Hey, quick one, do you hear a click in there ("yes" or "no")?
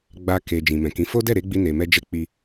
no